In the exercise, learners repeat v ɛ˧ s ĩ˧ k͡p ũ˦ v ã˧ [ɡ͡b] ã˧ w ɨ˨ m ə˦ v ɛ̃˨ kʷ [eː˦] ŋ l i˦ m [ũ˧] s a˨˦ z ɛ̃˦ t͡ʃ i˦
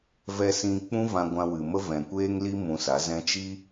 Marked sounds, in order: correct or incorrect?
incorrect: ɡʷ, correct, correct

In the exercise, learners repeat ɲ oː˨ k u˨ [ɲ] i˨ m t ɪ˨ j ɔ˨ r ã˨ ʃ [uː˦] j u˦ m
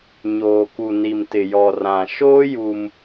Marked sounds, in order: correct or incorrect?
incorrect: n, incorrect: oː˦

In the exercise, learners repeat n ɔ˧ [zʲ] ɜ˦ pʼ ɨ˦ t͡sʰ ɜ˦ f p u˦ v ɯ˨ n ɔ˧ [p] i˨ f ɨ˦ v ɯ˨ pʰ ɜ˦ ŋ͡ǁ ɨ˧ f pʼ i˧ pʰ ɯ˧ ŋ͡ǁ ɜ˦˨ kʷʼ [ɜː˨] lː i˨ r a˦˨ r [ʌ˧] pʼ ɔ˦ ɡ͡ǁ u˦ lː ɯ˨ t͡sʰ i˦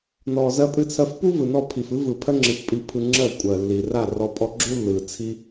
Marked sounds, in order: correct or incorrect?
incorrect: z, incorrect: pʰ, incorrect: ɜ˨, incorrect: ɔ˧

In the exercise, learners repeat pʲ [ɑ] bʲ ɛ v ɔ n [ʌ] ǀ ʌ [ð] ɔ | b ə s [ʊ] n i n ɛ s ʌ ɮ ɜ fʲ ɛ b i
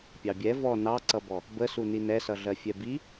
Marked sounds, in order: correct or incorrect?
correct, incorrect: ɑ, incorrect: b, incorrect: u

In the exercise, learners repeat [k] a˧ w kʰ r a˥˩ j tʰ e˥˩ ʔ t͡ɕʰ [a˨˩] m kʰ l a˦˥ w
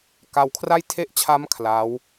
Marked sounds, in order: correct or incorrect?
correct, incorrect: a˦˥

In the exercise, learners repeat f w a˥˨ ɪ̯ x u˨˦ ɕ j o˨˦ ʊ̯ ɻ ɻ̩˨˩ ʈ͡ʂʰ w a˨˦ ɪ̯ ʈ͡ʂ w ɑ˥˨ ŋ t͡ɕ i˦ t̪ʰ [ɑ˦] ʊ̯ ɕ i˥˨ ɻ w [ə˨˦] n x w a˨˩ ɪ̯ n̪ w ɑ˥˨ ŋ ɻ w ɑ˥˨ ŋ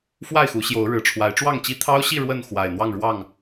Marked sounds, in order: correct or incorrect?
correct, incorrect: ə˥˨

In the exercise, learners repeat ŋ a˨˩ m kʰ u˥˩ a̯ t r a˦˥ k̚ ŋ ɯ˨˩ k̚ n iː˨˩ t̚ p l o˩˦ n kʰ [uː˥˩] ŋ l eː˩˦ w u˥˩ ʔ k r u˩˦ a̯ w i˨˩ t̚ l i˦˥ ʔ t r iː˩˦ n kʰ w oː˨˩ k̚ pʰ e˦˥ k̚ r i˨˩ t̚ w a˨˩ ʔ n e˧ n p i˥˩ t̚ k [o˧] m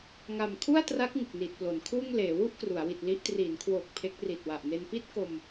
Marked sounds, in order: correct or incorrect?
correct, correct

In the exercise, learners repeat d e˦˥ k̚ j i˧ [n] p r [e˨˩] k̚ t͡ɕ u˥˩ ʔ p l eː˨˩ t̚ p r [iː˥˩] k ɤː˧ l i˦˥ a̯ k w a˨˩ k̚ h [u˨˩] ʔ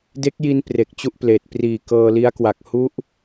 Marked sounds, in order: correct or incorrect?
correct, correct, incorrect: iː˨˩, incorrect: u˦˥

